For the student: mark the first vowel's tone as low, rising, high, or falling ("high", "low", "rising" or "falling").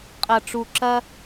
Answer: low